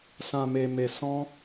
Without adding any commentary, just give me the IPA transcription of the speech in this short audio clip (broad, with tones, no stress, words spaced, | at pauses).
sã˧me˧me˧ sɔ̃˦